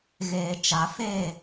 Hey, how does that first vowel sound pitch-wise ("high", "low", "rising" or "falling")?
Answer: low